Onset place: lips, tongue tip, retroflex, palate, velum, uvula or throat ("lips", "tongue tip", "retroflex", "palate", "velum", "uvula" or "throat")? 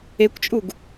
velum